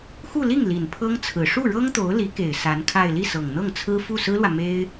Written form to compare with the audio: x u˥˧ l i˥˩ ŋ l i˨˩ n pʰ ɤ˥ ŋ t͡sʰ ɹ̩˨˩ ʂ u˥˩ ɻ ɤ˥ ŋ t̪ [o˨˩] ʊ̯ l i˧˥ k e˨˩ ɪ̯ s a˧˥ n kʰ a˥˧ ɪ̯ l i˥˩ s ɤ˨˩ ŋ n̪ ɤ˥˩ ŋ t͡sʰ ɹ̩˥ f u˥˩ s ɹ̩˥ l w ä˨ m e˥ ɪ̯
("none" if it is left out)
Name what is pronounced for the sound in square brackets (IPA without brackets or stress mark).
o˧˥